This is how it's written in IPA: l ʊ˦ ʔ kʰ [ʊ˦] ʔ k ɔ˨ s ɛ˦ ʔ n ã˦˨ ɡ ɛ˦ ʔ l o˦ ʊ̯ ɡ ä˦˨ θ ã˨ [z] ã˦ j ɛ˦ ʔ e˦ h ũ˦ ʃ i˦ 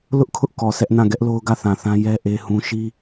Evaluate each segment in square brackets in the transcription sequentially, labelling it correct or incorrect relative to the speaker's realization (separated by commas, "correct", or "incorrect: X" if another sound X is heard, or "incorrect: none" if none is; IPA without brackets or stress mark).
correct, incorrect: θ